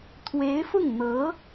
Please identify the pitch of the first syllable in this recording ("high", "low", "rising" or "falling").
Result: rising